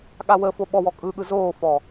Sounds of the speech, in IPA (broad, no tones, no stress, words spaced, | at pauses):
ɠawəfo ɓɔwɔ kʼɯɠɯ zoːfɔ